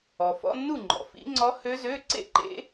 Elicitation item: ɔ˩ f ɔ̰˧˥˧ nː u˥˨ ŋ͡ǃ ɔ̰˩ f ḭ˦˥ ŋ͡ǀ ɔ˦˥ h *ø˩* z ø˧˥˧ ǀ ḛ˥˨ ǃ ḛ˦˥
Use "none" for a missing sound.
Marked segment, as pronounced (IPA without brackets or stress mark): ø˦˥